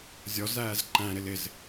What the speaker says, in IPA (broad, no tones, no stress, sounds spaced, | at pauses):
zʲ ɔ z æː z ǃ æ̃ ɾ ɪ l ɪ z